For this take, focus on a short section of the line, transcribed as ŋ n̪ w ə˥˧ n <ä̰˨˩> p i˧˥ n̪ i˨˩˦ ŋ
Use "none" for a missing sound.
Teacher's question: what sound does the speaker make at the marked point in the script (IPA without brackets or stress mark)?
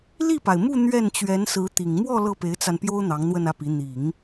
ä˥˩